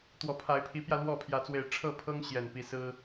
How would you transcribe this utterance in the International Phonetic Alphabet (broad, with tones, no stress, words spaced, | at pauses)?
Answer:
t̪wɔ˨˩pʰa˨˦ɪ̯pʰi˨˦pjä˧ lwɔ˥˨pʰjä˨˦t͡swe˨˩ɪ̯ ʈ͡ʂʰɤ˥˨pʰɤ˦ŋ ɕjɛ˨˩npi˥˨ sɹ̩˦